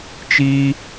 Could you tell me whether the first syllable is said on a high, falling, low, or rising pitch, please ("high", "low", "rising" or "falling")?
high